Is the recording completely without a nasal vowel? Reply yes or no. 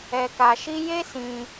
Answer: no